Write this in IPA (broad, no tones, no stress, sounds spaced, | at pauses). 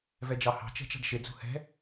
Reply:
v ɛ d͡ʒ ɑ h ɑ̤ t͡ʃ ɛ̤ t͡ʃ ɑ̤ ɖ ʃ ɪ d͡z ṳ h ɛ̤